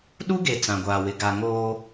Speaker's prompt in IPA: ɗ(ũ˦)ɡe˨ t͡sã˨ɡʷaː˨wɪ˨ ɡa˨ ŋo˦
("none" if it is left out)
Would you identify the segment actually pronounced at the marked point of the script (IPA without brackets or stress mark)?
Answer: u˦